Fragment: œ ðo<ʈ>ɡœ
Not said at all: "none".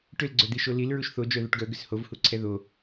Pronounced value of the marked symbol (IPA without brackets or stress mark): ʈ